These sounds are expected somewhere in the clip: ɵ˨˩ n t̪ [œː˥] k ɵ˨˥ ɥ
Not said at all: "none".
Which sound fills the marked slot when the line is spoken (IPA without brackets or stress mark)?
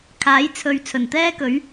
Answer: ɛː˥